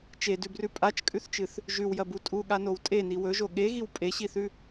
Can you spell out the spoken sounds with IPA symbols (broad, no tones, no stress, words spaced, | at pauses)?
t͡ʃedʉbrʉ pʼat͡ʃkʼʉθt͡ʃɨθ | ʒʉwjɐbu tʼuɠanow tʼeni wɵʒo ɠeɣiw pʼeɕiθʉ